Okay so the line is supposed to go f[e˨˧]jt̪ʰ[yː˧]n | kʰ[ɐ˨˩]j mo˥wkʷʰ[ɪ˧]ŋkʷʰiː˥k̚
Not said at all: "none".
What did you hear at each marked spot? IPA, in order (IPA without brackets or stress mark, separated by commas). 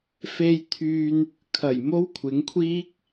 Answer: e˧, yː˧, ɐ˨˩, ɪ˨˥